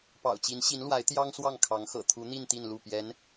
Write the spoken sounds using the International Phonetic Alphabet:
p ɑ̰˨˩ ʊ̯ t͡ɕ i˧˥ n ɕ i˧˥ n l w a˧˥ ɪ̯ t̪ j ɑ˥ ŋ s w ɑ˥˩ ŋ kʰ ɑ˧˥ ŋ x ɤ̰˨˩ t̪ʰ u˧˥ n̪ i˥˧ n t̪ i˥˧ n l u˥˩ p j ɛ˧˥ n

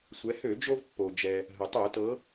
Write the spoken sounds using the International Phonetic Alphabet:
sʷ ɛ˩˧ h ø˧˩˧ d͡ʒ o˧ v pː o˩ d͡ʒ ɛ˩ | ɦ ə˩ tˤ o˧˩˧ t ɤ˩˧

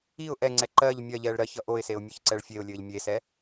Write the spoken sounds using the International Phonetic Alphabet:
i ʊ̯ ʔ ɛ ŋ͡ǀ ɛ ǃ ɜ ʎ mʲ ɜ ʎ ɛː ɭ ɾ ɜ ç ʌ ʔ o ɪ̯ s e ʊ̯ mʲ ɜ ç ǀ ɛ ɭ fʲ e ʊ̯ lʲ ɘː ʎ mʲ e s ɛ

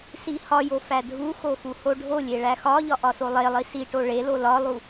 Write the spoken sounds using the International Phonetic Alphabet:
s i h ɒ j o f æ dʱ u x o x u h o ɖʱ o lʲ e ɭ æ x ɒ ʎ ɒ ʔ ɒ s o lˠ e lˠ i s i ʈ o ɭ e l o l ɒ lˠ u

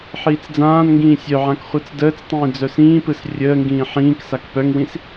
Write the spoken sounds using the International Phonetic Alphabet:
ħ iː t͡s d͡z ãː n ŋ ɡ ĩː sʲ œ ʕ ã k χʷ ɯ t͡s d əː t͡s tˤ ĩː d͡z œ s ĩː p ɯ s rʲ əː ŋ ɡ ĩː ħ ĩː k s a k p œ ŋ w ĩ s

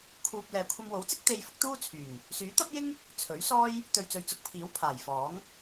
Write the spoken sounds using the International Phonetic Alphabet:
kʰ uː˧ p̚ l ɛː˨ kʷʰ ɐ˧ m w o˨˥ w t͡s ɪ˥ k̚ t̪ e˧ j f ʊ˨˥ k̚ t̪ uː˥ t͡sʰ yː˨˩ ŋ | s yː˨˥ t̪ ɐ˥ p̚ j ɪ˥ ŋ | t͡sʰ ɵ˨˥ ɥ s ɔː˥ j | t̪ ɵ˨ ɥ t͡s ɵ˨ ɥ t͡s ʊ˧ k̚ pʰ iː˨˥ w pʰ aː˨˩ j f ɔː˨˥ ŋ

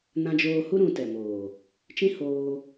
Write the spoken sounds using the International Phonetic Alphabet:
n ã˧ d͡ʒ oː˧ h u˦ ɾ ũ˧ t ɛ˨ m oː˨ | t͡ʃ ĩ˦ h oː˧

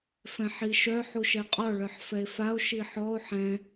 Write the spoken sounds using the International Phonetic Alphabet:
f ɛ̃ ħ i ʃ œ ħ u ʃ ɛ qʼ ɔ ɭ œ ħ f ɛ e̯ f a o̯ ʃ i ħ ɔ o̯ ħ ɛ̃

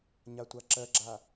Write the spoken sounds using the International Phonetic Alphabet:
ɲ a tʷ a ǁ ɜ ɡ͡ǁ a

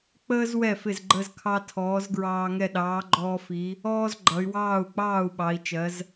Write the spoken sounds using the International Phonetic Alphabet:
k͡p əː˦ z w ɛ˥˩ f ɪ˥˩ z ɡ͡ǃ ə˦ z kʰ ɑ˦ tʰ ɔː˨˥ z ɡ ɹ ɑː˦ ŋ ɛ˥˩ ɗ ɑː˨˥ ɡ͡ǃ ɔː˦ f i˨˥ | ɔː˦ z ɡ͡ǃ ʌ˩˧ y̯ w ɑː˥˩ u̯ k͡p ɑː˥˩ u̯ ɓ ɑ˩˧ i̯ t͡ʃ ɜ˩˧ z

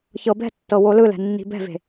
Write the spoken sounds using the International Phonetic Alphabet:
ç ɤ b ɛ̤ tː ɤ w o l ɯ l ɛ̤ nː i̤ b ɛ̤ v e̤

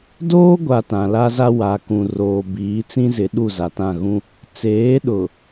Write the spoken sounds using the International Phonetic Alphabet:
d oː˦ ɡʷ a˨ t ã˨ l a˦ z a˦ w a˨ k ũ˨ r oː˨ b iː˨˦ t͡s ĩ˦ z ɪ˨˦ ɗ u˦˨ z a˨ t ã˦˨ ɣ ũ˦ | t͡s eː˨˦ ɗ ʊ˨

